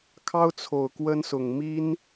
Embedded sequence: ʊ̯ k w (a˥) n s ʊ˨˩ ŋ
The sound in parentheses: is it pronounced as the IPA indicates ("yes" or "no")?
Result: no